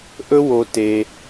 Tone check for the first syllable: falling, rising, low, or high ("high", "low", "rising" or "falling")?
high